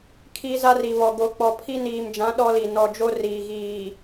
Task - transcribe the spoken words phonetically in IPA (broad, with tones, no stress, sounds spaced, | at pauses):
kʰ i˦ z a˦ r i˨ β ɔ˨ ɡ o˨ k͡p ɔ˨ pʰ i˦ n iː˨ m d͡ʒ ã˨˦ ɗ ɔ˦ l i˨ n ɔ˨ d͡ʒ o˦ r iː˨ ɣ iː˨